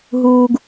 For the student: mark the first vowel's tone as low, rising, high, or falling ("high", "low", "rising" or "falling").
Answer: high